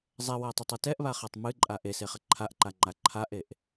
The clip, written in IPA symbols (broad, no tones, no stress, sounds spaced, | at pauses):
zˤ ɛ w a tˤ e tˤ ɛ t ɛ ʔ β a χ a tˤ m ɨ ǃʼ a ʔ e s e χ ɐ ǃʰ a ʔ ǃ a ŋ͡ǃ a ǃʰ a ʔ e ʔ